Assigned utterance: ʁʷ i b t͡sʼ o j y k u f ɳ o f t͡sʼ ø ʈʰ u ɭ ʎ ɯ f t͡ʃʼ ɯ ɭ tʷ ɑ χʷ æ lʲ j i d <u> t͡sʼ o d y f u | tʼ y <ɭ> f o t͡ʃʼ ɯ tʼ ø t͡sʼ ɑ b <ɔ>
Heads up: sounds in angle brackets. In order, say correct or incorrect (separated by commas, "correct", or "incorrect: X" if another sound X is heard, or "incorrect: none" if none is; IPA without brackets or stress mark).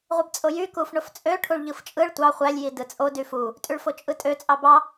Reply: incorrect: ɯ, correct, incorrect: ɑ